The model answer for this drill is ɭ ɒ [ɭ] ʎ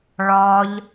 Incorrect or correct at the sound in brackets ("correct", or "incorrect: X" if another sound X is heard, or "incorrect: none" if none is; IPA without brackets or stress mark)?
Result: incorrect: none